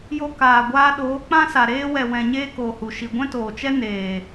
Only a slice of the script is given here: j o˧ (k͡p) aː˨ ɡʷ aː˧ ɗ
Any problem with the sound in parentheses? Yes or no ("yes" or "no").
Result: yes